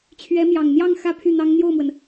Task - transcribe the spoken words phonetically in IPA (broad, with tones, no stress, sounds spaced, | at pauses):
t͡ɕʰ ɥ ɛ˧˥ m j ɑ˨˩ ŋ n̪ j ɑ˥˧ ŋ x ä˥˧ pʰ y˥˩ n̪ ɑ˥ ŋ n̪ j o˥˩ ʊ̯ m w ə˩ n